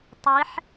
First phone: tˤ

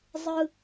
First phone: zˤ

